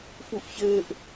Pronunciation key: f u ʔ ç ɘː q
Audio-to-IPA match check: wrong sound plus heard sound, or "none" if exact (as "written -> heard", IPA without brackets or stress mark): q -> ʔ